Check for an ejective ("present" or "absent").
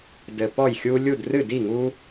absent